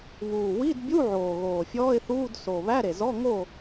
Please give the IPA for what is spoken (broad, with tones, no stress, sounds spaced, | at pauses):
β uː˨˩ w i˧˥˧ d bʲ u˧˥˧ ʕ oː˨˩ ɣ oː˨˩ fʲ ɔː˧˥˧ ɪ̯ θ uː˧˥˧ d s o˨˩ β æ˧˥˧ ɾ e˨˩ z ɔ˧˥˧ ŋ o˥˨